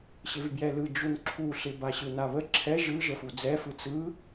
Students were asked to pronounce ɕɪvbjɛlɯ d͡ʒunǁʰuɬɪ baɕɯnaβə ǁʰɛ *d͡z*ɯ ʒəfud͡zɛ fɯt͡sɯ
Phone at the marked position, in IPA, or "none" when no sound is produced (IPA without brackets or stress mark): ʒ